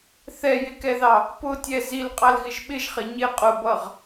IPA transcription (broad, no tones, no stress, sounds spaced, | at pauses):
θ ɛ j ɪ k ɛ ð ɑ | p ʊ tʲ ɛ z i l qʼ ɑ l ɣ ɪ ʒ ɓ ɪ ʒ χ ɪ ɲ ɪ qʼ ʊ b ʌ ʁ